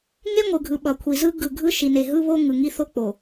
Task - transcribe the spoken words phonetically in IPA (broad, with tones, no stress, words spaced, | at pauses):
ŋe˦ŋʷɯ˨ɡʱɯ˨ ɓʌ˨kʷʰi˨ zɯ˦ ɡɯ˨ɡʱɯ˦ʃi˨ ne˨ɦɯ˦βo˦ ŋɯ˨ŋi˦ θo˦k͡po˨